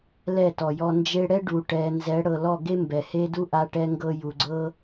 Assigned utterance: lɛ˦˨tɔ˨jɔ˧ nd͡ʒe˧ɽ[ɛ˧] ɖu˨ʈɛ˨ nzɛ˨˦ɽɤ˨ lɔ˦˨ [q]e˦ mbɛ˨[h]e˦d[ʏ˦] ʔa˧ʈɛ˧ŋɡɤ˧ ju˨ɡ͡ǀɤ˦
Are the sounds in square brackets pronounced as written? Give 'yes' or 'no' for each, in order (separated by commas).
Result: no, no, yes, no